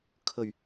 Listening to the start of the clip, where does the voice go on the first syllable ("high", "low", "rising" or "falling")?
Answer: low